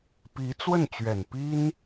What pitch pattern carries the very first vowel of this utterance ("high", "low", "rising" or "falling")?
rising